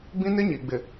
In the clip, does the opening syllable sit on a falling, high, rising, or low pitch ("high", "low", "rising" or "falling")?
high